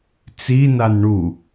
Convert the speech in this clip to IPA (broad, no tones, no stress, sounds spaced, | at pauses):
t͡s i n a n ɳ u